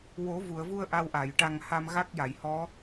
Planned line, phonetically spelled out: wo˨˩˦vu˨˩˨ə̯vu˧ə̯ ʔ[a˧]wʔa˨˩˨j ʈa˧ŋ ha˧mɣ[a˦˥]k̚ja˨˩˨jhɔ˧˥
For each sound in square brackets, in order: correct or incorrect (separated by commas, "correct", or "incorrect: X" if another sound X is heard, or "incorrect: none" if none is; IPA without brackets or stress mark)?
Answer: correct, correct